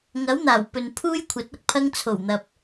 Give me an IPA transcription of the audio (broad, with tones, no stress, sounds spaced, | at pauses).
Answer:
ŋ ɐ˨˥ w n̪ aː˨˩ w p ɵ˨ n pʰ uː˥ j kʷʰ ɐ˨˥ t̚ ɐ˧ k̚ pʰ ɐ˥ ŋ t͡sʰ o˨˩ w n̪ ɐ˨ p̚